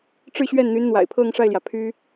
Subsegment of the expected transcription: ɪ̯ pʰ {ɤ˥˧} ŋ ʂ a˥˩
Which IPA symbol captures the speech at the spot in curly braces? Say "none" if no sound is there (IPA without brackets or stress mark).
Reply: ɤ˥˧